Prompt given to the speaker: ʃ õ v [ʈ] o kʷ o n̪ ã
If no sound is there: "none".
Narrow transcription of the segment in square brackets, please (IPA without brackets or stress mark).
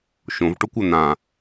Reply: ʈ